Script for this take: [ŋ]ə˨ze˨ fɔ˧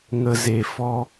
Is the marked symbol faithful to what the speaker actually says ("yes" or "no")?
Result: yes